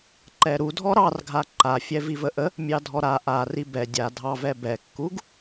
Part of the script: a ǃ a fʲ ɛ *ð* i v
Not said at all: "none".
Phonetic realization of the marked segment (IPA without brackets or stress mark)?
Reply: v